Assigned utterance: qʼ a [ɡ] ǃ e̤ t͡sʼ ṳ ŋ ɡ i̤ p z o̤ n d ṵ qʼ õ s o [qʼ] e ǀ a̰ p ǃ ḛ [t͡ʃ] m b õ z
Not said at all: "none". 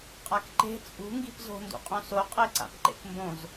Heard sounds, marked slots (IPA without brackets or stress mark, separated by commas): k, qʼ, k